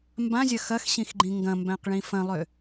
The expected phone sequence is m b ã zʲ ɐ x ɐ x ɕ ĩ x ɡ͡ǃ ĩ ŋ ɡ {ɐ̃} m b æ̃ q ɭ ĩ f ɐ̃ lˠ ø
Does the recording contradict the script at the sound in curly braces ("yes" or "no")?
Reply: no